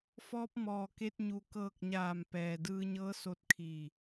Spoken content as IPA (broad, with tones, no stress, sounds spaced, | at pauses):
f ɔː˧ p̚ m ɔː˩ k e˧ t̚ ɲ u˩ k ɤː˧˩ k̚ ɲ aː˧˩ m p ɛː˩ d ɯː˧ ɲ ɤː˧˥ s o˧ t̚ kʰ iː˧˩